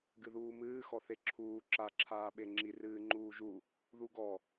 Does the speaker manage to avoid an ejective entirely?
yes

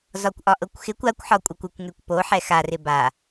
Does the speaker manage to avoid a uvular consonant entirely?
yes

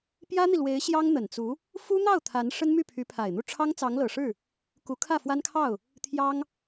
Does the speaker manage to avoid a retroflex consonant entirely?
no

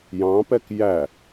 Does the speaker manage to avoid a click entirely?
yes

